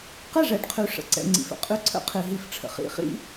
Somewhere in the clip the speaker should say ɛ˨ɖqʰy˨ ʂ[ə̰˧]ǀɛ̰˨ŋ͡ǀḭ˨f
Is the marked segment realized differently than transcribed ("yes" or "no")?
yes